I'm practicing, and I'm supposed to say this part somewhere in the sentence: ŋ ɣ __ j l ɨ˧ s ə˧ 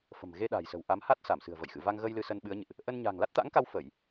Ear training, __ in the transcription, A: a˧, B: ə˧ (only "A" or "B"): B